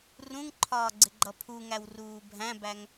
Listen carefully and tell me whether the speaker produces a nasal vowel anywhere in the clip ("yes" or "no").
yes